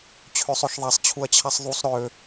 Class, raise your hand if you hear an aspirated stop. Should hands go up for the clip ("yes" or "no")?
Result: yes